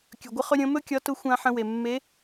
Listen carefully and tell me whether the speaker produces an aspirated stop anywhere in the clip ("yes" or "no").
no